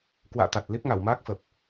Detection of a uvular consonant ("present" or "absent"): absent